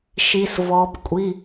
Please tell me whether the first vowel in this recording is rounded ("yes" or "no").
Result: no